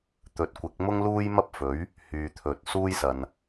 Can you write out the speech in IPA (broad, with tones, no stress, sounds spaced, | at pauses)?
t̪ ɵ˨˥ t̚ kʷ ɪ˨˥ k̚ m ʊ˥ ŋ l uː˥ j m ɐ˥ p̚ f ɵ˨˥ ɥ | h yː˨ t̪ʰ ɵ˨ t̚ s uː˥ j s ɐ˨ n